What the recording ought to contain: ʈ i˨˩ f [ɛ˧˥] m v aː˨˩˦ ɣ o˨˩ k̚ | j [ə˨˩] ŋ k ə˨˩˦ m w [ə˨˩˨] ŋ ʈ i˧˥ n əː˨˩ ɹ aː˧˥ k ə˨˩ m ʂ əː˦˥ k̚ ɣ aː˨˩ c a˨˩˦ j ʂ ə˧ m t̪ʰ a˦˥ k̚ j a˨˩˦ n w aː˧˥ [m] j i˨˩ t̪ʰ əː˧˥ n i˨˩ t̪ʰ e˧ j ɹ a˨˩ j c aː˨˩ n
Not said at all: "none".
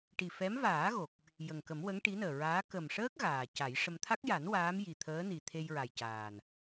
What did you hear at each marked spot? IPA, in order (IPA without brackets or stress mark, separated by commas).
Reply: ɛ˧˥, ə˨˩, ə˧˥, m